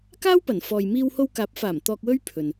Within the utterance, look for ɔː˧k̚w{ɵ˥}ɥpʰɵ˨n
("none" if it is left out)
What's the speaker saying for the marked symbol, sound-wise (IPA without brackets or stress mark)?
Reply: ɵ˥